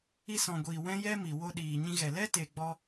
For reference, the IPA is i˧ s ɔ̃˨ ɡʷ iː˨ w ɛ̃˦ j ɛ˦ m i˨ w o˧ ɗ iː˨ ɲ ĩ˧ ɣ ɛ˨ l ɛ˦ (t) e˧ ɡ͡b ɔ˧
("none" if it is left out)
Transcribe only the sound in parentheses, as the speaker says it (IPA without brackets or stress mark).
t